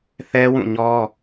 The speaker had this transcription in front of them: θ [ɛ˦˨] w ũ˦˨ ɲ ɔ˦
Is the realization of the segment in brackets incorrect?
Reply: yes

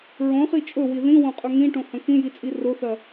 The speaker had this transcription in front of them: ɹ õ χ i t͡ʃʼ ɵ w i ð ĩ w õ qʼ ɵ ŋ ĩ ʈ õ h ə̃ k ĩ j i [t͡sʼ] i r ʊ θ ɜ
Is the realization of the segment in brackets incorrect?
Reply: no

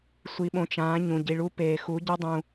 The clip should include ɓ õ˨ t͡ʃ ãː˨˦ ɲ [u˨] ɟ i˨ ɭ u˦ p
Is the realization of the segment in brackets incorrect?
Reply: yes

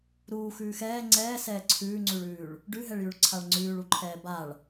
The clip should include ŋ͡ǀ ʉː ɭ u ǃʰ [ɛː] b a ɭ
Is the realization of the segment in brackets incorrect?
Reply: no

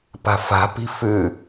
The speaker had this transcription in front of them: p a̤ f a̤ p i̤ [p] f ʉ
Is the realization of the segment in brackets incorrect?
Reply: yes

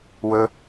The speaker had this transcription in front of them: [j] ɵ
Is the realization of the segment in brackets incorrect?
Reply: yes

